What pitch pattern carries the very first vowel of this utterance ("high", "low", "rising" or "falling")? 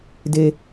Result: high